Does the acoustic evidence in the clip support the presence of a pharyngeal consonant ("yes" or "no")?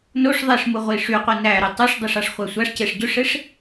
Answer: no